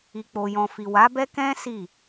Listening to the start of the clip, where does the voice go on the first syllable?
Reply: low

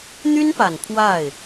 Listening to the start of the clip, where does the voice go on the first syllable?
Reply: high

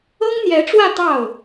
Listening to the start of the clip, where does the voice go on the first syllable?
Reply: high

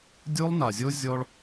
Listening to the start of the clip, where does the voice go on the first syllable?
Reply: high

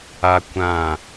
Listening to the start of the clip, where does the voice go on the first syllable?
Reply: high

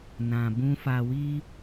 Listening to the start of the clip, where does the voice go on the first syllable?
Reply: low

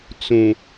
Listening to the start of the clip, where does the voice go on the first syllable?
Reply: low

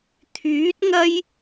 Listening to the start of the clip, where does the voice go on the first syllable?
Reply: rising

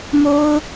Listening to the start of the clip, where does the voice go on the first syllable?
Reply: high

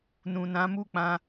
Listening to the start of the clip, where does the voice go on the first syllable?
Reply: low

